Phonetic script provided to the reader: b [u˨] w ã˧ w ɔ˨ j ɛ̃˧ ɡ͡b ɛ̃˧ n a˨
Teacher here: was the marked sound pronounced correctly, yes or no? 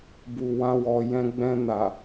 yes